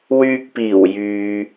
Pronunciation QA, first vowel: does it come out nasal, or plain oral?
oral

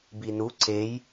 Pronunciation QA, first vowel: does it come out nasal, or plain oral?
oral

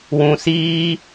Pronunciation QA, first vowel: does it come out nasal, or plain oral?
nasal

